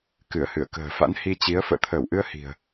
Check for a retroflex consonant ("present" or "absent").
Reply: absent